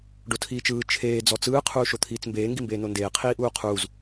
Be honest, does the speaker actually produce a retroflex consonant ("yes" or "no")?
yes